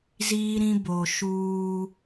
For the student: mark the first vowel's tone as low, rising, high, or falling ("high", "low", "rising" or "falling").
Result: high